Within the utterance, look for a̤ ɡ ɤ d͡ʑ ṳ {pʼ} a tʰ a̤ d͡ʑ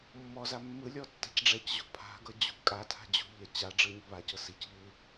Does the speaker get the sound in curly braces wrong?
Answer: yes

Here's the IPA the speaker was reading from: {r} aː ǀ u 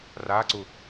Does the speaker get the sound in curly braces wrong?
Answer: no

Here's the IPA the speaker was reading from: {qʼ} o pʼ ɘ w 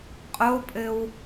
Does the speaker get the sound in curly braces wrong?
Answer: no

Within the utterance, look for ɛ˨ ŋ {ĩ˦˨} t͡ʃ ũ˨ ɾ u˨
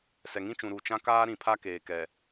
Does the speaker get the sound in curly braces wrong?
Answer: yes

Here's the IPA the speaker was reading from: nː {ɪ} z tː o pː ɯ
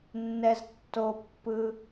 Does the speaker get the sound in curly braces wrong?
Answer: yes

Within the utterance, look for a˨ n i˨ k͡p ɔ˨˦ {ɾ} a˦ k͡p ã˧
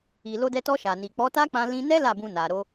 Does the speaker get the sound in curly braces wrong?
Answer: yes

